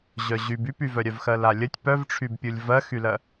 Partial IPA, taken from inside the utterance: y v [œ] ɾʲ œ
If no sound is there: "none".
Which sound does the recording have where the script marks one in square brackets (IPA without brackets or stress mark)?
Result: œ